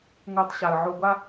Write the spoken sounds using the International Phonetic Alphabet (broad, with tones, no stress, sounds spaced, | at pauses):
ŋ o˧ tˤ ɕ a˩ ə̯ ʕ o˧ ɡʷ a˥